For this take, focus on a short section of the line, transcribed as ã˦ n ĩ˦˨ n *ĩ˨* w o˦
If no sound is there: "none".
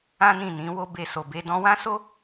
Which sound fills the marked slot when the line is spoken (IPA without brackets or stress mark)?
ĩ˨˦